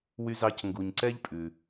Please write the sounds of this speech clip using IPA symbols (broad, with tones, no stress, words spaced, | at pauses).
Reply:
wy˧zɑ˧cŋɡu˩ɲǀɛ˥ʎ pʼʉ˩